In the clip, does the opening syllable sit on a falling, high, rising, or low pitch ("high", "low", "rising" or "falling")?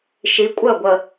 rising